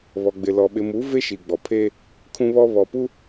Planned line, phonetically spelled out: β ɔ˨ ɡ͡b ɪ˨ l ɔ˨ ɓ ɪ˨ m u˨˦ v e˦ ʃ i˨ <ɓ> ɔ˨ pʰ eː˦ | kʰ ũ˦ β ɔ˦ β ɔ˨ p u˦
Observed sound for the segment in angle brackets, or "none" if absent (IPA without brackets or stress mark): ɡ͡b